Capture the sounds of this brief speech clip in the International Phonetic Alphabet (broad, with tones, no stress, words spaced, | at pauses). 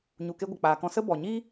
ɲu˧ke˦ ɡʷə˨k͡paː˨kɔ̃˧sə˦ bɔ˨ɲi˦